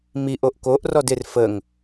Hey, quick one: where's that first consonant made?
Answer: lips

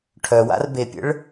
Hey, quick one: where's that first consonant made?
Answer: retroflex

